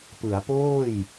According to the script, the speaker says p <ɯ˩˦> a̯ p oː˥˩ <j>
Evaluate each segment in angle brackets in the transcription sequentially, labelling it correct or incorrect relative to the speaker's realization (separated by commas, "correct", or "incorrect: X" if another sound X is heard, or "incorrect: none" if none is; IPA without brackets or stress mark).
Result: correct, correct